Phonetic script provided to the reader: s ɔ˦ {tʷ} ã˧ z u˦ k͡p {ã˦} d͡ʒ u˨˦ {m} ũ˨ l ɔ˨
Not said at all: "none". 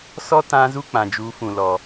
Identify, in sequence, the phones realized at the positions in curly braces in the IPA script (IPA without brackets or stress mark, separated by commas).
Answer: t, ã˨, f